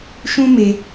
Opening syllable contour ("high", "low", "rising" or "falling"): high